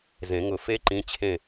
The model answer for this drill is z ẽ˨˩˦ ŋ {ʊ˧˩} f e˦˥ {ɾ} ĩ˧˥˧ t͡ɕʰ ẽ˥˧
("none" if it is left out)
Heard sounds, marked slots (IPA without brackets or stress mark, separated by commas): ʊ˧˩, ǃ